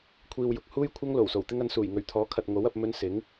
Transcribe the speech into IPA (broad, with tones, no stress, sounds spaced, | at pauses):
kʷʰ iː˨ w j ʊ˨ k̚ h uː˥ j kʷʰ ɐ˥ ŋ l o˨˩ w s o˨˩ w t̪ ɪ˥ ŋ ɐ˧ n s uː˨˩ j ŋ ɵ˨˩ ɥ t̪ʰ ɔː˨˥ kʰ ɐ˨ t̚ ŋ o˨˥ w ɐ˧ p̚ m ɵ˥ n s ɪ˨˥ ŋ